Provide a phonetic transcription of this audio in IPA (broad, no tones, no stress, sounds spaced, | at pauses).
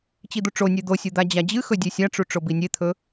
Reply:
t͡ɕ i d̪ u ʈ͡ʂ o nʲ e d̪ o sʲ u d̪ a d͡ʑ a d͡ʑ ɨ x ɵ dʲ e sʲ a ʈ͡ʂ u ʈ͡ʂ o b i nʲ e t̪ʰ ɵ